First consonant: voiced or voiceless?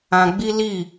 voiced